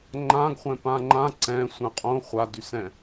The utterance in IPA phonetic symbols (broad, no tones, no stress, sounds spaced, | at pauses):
ŋ͡ǃ ã ɡ χʷ ɛ̃ p ã ŋ͡ǃ ã ǀ ɛ̃ sʷ ɛ̃ qʼ õ χʷ a d y s ɛ̃